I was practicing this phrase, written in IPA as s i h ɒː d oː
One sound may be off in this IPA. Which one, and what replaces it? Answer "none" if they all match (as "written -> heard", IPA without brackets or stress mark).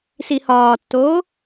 d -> tː